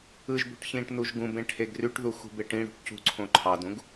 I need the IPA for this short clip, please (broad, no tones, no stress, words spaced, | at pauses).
ɯʒbo̤ʈ çĩːʈnuʒɡũbẽ ʈʰeɡryʈðu xṳbeʈĩɽṳʈ cṳǀʰõ ǃʰɑdũɡ